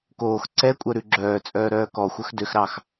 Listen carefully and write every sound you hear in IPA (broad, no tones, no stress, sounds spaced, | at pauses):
k oː x ǀ ɛ kʷʼ œ ɾ ʉ ɡ͡ǁ œː t͡sʼ œː ɾ œː k ɔ xʷ œ x d ø x ɾ ɑ x